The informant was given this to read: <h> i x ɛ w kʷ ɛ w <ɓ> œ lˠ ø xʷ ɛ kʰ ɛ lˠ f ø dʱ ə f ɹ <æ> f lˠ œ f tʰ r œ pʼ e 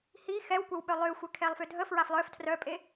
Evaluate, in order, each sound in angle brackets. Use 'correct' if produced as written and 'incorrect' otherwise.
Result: correct, correct, incorrect: a

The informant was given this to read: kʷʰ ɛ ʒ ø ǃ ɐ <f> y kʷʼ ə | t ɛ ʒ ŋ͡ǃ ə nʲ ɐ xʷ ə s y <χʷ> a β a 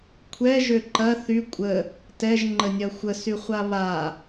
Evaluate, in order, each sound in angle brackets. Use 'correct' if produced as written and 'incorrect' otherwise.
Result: incorrect: θ, correct

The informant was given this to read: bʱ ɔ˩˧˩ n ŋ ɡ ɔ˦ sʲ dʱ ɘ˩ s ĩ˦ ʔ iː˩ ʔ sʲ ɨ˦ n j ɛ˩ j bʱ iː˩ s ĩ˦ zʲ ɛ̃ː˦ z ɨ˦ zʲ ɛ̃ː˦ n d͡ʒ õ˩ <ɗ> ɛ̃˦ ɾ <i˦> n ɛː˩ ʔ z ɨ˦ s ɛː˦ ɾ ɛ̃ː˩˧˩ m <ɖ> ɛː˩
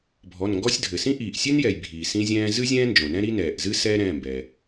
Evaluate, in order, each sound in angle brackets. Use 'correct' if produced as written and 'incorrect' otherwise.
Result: incorrect: n, correct, incorrect: b

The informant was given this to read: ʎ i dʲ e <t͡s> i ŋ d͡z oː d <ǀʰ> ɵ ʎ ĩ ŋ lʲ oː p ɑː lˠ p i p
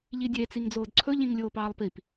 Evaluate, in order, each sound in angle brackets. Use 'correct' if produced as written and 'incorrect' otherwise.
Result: correct, correct

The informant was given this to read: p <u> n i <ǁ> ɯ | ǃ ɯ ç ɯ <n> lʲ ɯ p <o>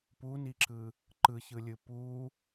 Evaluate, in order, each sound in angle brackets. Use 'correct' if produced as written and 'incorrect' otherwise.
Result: correct, correct, incorrect: none, incorrect: u

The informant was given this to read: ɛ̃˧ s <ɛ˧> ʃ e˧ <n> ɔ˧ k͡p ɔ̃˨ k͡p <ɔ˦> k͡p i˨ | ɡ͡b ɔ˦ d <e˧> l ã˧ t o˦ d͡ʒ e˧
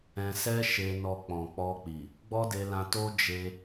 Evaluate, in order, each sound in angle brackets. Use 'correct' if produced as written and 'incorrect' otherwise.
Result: incorrect: ɛ˦, correct, incorrect: ɔ˧, correct

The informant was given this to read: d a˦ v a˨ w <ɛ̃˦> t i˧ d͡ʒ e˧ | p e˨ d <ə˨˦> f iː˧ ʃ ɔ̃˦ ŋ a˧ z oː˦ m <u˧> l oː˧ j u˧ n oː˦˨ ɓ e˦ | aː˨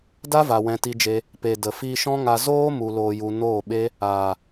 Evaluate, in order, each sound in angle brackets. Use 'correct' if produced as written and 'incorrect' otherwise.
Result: incorrect: ɛ̃˧, incorrect: ə˨, correct

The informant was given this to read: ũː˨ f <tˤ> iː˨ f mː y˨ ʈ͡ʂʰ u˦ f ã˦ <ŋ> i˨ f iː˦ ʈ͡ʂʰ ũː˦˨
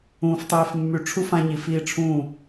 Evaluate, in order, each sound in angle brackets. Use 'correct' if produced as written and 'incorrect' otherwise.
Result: correct, incorrect: ɲ

